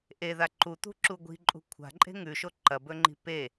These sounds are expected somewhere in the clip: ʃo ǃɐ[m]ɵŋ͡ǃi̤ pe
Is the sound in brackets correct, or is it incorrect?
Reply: incorrect